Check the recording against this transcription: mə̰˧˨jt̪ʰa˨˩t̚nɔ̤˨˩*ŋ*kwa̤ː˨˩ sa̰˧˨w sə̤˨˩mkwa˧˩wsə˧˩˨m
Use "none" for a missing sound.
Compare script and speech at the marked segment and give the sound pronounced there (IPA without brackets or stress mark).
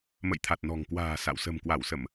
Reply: ŋ